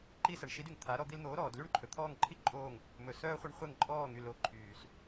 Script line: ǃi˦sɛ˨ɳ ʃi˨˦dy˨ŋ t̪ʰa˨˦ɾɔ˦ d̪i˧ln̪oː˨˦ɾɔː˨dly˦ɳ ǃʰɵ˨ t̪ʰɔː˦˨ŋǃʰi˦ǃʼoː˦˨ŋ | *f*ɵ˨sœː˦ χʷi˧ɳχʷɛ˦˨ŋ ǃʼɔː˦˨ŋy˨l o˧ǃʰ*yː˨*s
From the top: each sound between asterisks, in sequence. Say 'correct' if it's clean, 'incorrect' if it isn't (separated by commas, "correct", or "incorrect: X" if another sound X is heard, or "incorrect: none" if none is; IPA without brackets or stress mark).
incorrect: m, correct